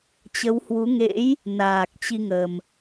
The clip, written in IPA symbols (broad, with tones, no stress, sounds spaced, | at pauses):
t͡ɕ ə˨˦ w h w u˨˦ ŋ ḛ˧˥ j | n aː˨˩ k̚ t͡ɕ i˧ ŋ ə˨˩ m